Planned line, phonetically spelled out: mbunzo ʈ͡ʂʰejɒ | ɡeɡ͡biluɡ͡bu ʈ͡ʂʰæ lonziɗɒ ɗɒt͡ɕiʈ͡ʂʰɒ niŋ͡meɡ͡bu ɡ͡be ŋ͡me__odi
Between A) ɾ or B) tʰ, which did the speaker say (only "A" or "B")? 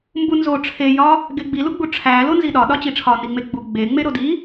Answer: A